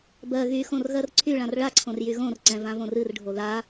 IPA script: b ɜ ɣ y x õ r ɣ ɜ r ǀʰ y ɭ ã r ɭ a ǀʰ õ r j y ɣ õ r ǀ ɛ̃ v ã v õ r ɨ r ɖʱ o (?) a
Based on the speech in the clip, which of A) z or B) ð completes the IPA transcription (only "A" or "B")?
B